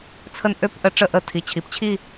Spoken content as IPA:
t͡sʰ ə˦˥ n ʔ ø˥˧ p ʔ ə˦˥ ʈ͡ʂ ə˥˩ ʔ ə˥˩ tʰ i˩˧˩ t͡ɕʰ i˩˧ p t͡ɕʰ i˥˧

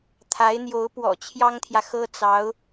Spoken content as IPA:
t̪ʰ a˧˥ ɪ̯ n̪ j o˧˥ ʊ̯ p w ɔ̰˨˩ t͡ɕʰ j ɑ˥ ŋ t̪ʰ j ä˨ x ɤ˥ t͡s ɑ˧˥ ʊ̯

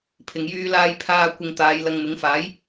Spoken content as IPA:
pʰ ɪ˧ ŋ j yː˥ l aː˥ j pʰ aː˥ kʷ ɪ˧ ŋ t̪ aː˨˧ j l ɐ˧ ŋ m ɪ˨˥ ŋ f aː˨˥ j

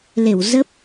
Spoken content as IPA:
l e˧˩ w z ə˦˥ p̚

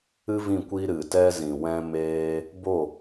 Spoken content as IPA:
ɨ˦ v ĩ˦˨ kʷ i˧ ɾ ɨ˨ t ɛ˧ z ĩ˨ w ɛ̃˧ m eː˦ | b o˦˨

